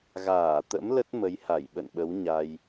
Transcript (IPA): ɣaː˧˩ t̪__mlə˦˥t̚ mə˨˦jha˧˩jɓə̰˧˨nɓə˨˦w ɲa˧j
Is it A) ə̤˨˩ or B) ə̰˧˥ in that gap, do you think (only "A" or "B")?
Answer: B